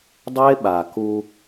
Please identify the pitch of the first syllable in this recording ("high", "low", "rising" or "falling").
high